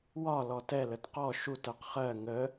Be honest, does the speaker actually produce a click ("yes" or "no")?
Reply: no